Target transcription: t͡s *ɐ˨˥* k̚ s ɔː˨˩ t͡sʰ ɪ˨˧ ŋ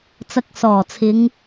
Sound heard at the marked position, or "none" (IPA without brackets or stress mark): ɐ˧